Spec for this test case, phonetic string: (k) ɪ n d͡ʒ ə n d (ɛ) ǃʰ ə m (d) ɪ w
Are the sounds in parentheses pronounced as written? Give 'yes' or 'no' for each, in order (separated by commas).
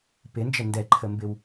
no, yes, no